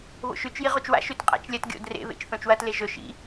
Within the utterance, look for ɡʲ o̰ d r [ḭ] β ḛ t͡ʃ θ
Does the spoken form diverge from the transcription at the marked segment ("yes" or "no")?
yes